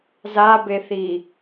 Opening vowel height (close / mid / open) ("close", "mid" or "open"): open